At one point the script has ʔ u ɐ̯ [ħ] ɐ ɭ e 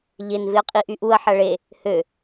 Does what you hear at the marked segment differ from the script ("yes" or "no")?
no